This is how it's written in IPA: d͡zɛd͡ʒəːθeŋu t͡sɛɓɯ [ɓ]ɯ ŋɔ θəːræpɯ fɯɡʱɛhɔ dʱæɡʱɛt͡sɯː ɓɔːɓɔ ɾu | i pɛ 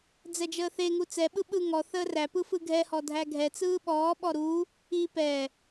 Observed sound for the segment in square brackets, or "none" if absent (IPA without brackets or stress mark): ɓ